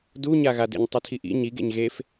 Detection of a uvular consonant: absent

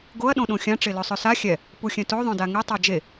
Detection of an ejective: absent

